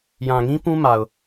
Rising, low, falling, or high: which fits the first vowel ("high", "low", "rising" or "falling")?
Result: low